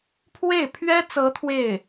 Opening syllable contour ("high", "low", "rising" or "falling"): falling